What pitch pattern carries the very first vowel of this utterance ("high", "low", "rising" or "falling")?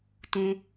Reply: high